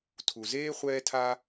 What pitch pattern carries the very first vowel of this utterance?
low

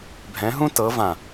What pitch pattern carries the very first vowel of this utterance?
rising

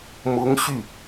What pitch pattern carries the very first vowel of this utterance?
rising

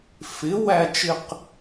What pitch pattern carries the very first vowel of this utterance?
rising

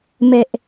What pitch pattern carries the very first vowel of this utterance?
low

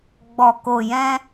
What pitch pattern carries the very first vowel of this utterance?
low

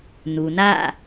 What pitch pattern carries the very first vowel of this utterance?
low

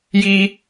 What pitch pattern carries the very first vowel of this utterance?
high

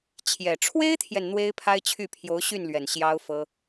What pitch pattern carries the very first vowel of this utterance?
low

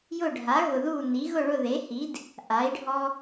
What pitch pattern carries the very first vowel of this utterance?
falling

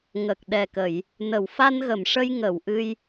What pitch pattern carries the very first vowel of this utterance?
low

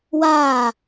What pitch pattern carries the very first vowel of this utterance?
falling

